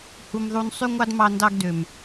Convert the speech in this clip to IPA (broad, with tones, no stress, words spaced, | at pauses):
hu˧mðˤu˧n sˤy˦ŋʷɑ˦dmɑ˧ ndɑ˦ɡdø˨m